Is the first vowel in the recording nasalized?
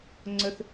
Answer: no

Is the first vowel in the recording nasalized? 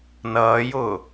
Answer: no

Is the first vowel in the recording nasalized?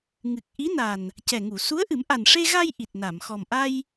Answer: no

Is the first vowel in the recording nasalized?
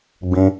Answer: yes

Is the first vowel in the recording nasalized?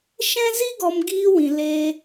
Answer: yes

